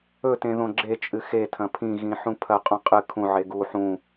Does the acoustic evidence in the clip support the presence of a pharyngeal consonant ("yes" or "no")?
yes